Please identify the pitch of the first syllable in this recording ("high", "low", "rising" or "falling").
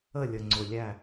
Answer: falling